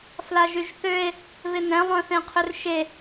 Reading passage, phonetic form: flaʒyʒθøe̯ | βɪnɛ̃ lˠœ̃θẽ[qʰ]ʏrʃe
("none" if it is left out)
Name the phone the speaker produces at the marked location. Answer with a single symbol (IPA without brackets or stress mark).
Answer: qʰ